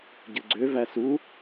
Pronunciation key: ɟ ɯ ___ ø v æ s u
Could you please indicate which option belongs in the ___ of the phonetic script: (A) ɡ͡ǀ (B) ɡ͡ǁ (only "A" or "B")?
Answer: A